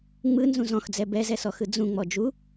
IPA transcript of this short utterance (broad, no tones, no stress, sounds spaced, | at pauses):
ŋ͡m ɯ n z ũ z ɔ̃ x d͡z ɛ b ɛ z ɛ s ɔ x ɯ d͡z ũ ŋ͡m ɔ d͡ʒ u